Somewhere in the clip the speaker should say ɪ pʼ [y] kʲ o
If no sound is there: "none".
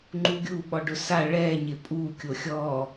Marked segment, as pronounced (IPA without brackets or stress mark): u